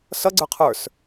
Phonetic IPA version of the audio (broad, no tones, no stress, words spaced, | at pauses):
sʌɡ͡ǀə˞ qʰə˞s